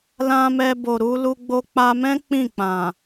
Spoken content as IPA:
lã˧mɛ˧bo˨ ɾu˧lu˧ ɡ͡bo˧k͡pa˧mɛ̃˦ k͡pĩ˦˨k͡pã˨

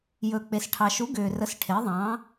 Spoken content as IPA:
jɵ˨k͡pe˨s ʈʰɑ˨ʃu˨˥ ɡʏː˨rə˨˥s ʈʰe˨˥ðˤɑ̃˨˥

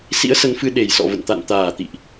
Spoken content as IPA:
sḭ˧˥ə̯sə˨˦nfɨ˧ ɗe˨˩jsɔ̰˧˨və̰˧˨nt̪a̰˧˨n t̪aː˨˩t̪ḭ˧˨ʔ

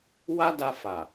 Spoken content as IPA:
wa˦da˧ fa˨

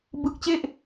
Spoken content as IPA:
bɯ˦˥k̚t͡ɕe˥˩ʔ

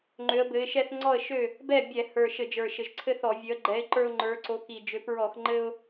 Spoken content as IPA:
ŋ͡ǃø˨˦ə̯bɘ˨˦ɪ̯ ʃɛ˦θŋ͡ǀɔ˥˨ə̯ʃø˥˨ | bɛ˥˨ bʲɛ˧˩˧hə˞˨˩ ʃɘ˧˩˧d͡ʒə˞˨˩ʃɘ˨˩ʒǀʰɘ˦ θɔ˧˩˧vʲø˨˦ə̯ɡ͡ǃɛ˨˦ɪ̯ ǃə˞˦ʊ̯ŋ͡ǃə˞˨˦ǀo˨˦ ki˨˩d͡ʒø˨˦p ɹɔ˧˩˧x ŋ͡ǃɘ˦ʊ̯

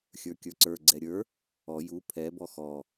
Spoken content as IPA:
xʲə˞kʲə˞ǀə˞ ɡ͡ǀɛɾʲə˞ | ɔ ju pʰɛ bɔxɔ

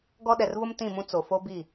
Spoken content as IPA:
ɡɔ˦ ɗɛ˨rvʊ˦m tĩ˦˨mũ˦ t͡so˨fo˦ bi˦˨

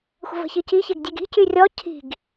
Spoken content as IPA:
xʷə̤və̤çici çeɡdʲeɡi̤ cyrʲɔ cʰi̤ɡ

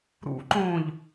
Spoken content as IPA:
ɾṵǃõːʎ

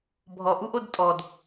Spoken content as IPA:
bʱɔʔuʔod tʼɔd

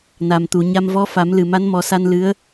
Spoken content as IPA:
na˨˩mt̪u˨˩˨ɲa˧m vɔ˧˥fa˨˩˦m lɨ˨˩ma˧˥nmɔ˨˩˦sa˧n lɨ˧˥ə̯

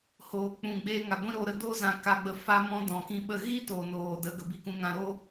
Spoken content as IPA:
hoː˨k͡pũ˨ ɡ͡beː˧ŋa˨ɡʷĩ˦ ɾo˧ɾə˧ do˧zã˨ka˨ɡ͡bə˨ fa˧mɔ̃˧ dɔ̃˨kĩ˧ɓə˦˨ ɣi˦ to˨noː˨ də˨˦ ɡə˨bi˧kũ˧ŋã˧ ɾo˦

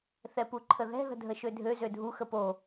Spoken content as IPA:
θɛpuǃʰəðɛ̤ ðə̤dʱəʃødʱø zødʱu xəpo

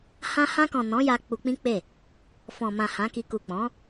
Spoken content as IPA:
hã˧hã˧kɔ̃˨ nɔ̃˨˦ja˧ k͡pu˧k͡pĩ˦k͡pe˦˨ | fɔ̃˨mã˨ hã˨˦ki˧ ku˨k͡pɔ̃˨˦

